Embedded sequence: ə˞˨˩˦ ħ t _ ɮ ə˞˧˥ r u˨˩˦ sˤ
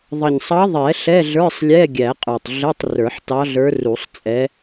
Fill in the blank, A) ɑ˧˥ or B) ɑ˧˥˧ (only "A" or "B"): A